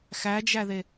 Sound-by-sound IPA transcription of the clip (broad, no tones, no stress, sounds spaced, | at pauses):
x æ d͡ʒ æ ð e